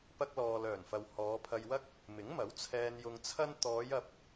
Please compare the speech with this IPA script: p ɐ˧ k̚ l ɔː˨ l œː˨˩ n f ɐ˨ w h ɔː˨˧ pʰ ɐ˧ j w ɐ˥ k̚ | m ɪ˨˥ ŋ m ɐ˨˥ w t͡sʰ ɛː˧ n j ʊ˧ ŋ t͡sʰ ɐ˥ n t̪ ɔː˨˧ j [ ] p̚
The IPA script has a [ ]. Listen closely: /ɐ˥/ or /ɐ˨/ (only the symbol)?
ɐ˨